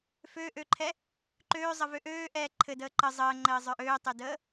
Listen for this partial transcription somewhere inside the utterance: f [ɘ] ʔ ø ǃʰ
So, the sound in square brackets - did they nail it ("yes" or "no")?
no